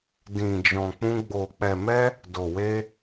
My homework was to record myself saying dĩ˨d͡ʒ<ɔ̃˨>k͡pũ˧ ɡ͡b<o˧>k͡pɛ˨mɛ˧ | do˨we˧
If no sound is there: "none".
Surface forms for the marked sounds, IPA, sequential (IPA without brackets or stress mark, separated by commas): ɔ̃˨, o˨